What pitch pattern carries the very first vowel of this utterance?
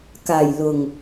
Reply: low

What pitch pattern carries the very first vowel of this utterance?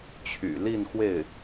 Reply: low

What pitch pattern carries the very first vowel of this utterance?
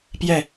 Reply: falling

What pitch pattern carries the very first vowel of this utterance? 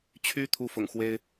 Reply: high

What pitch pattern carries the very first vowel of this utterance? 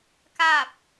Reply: falling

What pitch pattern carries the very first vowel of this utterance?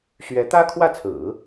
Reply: rising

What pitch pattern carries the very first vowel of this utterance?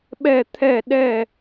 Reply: falling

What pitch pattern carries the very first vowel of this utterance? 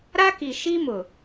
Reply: high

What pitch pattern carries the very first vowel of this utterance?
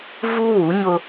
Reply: high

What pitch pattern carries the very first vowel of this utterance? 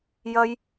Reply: high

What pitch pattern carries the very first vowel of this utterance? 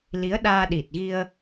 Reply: rising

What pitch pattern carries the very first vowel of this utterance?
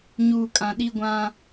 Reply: low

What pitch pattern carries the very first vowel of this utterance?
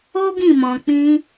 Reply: high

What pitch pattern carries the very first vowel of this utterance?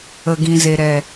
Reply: low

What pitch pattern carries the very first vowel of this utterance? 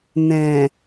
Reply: low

